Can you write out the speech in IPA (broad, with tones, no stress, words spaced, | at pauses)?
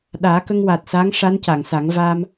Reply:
ɗaː˨˩˦kə˧ŋwa˨˩t̚saː˧˥ŋ ʂa˧˥nca˨˩˨ŋsa˨˩˦ŋ vaː˧m